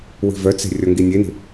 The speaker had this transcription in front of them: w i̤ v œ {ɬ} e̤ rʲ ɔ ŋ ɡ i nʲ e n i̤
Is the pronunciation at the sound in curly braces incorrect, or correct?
incorrect